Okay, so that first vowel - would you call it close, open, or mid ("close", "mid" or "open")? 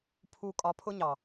close